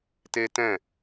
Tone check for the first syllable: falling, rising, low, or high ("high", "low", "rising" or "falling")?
high